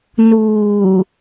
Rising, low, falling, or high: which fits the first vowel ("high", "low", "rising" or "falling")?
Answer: low